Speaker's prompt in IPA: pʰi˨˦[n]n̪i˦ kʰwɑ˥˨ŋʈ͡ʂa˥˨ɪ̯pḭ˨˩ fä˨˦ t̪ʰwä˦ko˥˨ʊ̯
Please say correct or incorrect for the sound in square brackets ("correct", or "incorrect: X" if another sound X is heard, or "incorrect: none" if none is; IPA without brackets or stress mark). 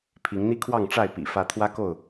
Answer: incorrect: ŋ